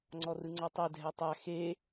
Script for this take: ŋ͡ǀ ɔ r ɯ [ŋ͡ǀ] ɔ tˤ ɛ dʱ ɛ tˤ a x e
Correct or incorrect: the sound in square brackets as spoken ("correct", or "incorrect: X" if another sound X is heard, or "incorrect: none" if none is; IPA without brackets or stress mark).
correct